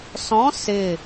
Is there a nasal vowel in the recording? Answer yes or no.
yes